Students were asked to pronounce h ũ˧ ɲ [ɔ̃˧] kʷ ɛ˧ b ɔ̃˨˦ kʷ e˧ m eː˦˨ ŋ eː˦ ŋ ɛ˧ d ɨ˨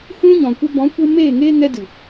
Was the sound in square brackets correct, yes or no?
no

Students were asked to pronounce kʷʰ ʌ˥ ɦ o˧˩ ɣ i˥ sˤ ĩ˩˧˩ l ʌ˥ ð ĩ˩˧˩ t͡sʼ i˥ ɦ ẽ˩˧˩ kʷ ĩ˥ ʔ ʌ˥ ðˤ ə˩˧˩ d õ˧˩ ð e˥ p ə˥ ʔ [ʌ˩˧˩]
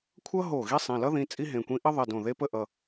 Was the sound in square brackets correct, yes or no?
yes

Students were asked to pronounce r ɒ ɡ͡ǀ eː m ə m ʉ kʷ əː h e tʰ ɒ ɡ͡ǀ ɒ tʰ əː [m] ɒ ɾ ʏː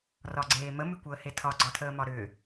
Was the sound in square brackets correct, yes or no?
yes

